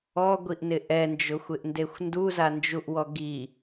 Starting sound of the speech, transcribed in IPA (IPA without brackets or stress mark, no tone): ɔ